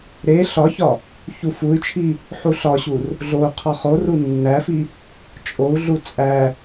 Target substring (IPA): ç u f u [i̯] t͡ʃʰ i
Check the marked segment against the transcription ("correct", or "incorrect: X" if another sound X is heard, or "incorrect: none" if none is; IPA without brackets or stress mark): incorrect: y̯